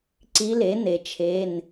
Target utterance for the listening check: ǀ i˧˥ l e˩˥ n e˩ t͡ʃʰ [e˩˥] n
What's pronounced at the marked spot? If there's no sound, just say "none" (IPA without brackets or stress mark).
e˩˧˩